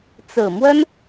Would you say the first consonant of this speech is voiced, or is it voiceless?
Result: voiceless